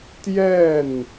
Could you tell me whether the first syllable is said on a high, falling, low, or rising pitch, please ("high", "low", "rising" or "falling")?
falling